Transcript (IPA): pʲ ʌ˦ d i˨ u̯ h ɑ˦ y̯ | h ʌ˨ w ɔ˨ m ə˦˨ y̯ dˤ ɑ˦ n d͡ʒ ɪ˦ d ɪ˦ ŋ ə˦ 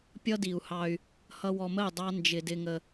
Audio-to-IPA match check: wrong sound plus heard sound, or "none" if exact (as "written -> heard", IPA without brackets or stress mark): none